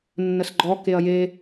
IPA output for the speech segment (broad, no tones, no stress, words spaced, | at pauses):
nːəsɡ͡ǃɔ keɐ̯je